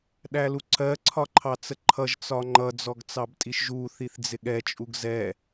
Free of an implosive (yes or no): no